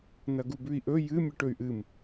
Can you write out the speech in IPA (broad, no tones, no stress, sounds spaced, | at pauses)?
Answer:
n ɐ ɡ u b ʉ i̯ ʔ ɵ j ɨ mʲ ɨ ʈ ɵ y̯ ʔ ɨ m